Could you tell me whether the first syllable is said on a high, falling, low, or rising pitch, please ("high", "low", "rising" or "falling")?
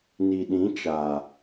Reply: low